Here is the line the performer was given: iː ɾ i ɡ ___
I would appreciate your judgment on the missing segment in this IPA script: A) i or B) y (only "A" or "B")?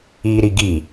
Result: A